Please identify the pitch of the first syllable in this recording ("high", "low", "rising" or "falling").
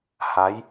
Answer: rising